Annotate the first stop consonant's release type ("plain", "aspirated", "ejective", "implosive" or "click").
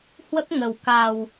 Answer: plain